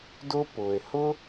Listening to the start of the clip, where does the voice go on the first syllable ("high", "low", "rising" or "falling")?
high